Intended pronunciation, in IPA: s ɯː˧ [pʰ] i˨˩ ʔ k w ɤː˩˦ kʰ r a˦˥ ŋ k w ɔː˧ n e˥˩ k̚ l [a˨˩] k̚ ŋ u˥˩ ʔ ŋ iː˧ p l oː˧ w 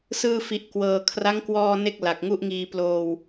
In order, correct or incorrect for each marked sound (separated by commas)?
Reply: incorrect, correct